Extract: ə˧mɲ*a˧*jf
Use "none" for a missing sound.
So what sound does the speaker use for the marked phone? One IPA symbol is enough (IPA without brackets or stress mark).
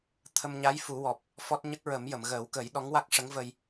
a˧˥